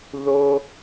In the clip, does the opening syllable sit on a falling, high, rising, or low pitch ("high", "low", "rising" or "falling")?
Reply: high